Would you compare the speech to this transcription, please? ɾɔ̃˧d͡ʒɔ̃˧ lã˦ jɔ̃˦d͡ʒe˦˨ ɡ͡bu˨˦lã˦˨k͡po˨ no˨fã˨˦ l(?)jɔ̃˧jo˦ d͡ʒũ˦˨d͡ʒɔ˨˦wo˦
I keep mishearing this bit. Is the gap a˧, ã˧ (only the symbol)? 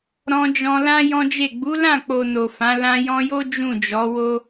ã˧